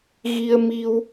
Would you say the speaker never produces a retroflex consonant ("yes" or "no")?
yes